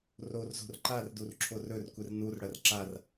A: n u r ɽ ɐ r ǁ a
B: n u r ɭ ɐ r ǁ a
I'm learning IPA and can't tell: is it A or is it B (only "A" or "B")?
A